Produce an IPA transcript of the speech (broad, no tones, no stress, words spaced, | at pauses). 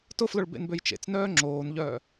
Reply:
tʊflʊɭ bḛnbøjt͡ʃḛt͡snœː ŋ͡ǁoːnʎœ